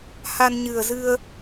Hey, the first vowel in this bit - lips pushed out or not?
no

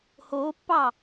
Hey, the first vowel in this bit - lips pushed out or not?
yes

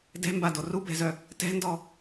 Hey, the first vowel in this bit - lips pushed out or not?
no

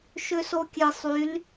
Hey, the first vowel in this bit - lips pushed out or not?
yes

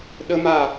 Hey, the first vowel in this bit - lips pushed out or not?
no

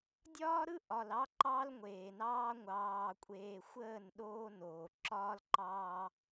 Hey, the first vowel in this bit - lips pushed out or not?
yes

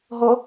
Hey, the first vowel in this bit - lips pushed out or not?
yes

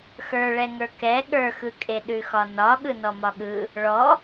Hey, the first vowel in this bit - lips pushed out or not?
no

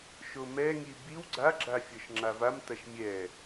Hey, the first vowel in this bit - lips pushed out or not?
yes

